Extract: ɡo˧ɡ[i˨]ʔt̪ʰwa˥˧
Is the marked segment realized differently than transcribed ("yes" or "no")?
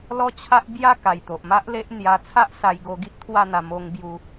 yes